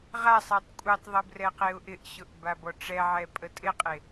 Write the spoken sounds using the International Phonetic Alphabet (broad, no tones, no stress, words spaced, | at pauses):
ʁasˤɛtˤ kʷʼɛtˤðˤə brɛqeʊ̯ʔɪʔɕʊʔ babɔʈ͡ʂɛʕɛ pʼətʼɪqʼe